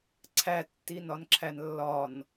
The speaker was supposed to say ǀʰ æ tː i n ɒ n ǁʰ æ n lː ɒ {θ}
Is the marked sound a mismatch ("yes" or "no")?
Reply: yes